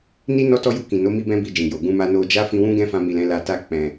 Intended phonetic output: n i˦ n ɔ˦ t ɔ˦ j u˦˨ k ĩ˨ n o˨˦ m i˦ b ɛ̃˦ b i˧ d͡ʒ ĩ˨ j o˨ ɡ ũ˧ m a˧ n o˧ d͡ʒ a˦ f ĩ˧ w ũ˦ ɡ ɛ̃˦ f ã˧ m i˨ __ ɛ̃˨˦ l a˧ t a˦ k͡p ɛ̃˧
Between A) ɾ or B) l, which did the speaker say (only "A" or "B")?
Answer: B